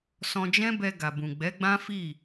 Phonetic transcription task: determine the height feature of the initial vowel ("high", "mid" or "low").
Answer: mid